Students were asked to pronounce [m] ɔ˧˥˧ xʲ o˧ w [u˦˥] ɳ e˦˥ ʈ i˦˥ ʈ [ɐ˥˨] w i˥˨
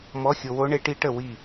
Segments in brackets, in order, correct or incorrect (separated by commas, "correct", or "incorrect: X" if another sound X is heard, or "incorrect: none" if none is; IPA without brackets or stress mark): correct, incorrect: o˦˥, incorrect: ə˥˨